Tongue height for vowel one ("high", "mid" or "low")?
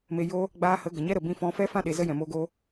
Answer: mid